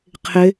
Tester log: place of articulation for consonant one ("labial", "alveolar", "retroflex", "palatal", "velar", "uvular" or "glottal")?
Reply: uvular